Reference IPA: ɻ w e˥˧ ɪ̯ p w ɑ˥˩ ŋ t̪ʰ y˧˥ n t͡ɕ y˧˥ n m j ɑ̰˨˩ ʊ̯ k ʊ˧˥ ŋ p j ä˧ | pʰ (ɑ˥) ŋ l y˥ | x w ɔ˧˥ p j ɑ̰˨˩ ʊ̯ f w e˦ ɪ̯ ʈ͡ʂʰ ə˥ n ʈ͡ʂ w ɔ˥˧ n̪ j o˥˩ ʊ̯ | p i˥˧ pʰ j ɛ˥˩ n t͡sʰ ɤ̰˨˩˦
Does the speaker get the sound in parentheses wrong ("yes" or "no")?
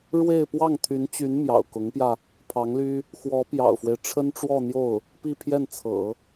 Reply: yes